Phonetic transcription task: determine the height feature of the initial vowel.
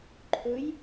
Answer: mid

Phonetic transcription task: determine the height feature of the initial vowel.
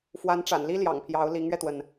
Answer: low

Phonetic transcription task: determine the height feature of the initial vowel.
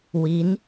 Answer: high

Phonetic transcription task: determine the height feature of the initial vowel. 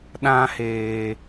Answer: low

